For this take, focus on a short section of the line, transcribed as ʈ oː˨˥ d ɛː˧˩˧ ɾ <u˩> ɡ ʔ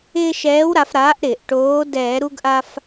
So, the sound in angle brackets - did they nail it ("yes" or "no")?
no